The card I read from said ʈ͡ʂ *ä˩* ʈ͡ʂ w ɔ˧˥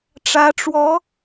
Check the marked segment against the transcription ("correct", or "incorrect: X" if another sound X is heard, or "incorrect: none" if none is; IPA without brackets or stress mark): incorrect: ä˧˥